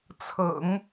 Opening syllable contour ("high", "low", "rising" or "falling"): low